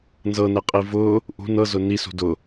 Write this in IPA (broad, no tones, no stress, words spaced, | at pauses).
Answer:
nzɤnɛqʼi vʊ | ʔṳn ɤzʊ nisṳ dʊ